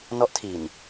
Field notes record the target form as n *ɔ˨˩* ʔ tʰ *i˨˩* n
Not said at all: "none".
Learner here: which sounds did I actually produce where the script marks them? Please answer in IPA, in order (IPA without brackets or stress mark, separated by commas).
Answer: ɔ˦˥, i˨˩